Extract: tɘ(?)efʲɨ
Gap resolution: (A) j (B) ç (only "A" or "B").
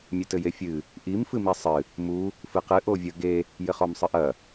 A